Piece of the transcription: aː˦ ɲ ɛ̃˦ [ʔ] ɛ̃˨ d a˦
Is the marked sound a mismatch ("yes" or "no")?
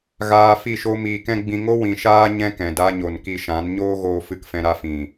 yes